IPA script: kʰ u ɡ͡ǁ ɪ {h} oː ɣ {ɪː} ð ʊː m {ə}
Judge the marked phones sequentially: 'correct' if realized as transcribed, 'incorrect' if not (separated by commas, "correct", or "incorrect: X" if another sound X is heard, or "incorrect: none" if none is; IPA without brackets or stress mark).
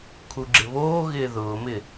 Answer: incorrect: β, correct, incorrect: ɪ